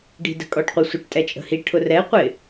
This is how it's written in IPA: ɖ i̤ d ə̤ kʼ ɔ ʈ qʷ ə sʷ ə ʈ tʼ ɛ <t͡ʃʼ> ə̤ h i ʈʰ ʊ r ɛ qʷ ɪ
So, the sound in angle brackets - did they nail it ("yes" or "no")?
yes